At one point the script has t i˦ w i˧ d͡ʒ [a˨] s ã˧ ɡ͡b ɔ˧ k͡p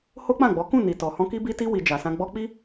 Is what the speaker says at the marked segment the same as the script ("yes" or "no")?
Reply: yes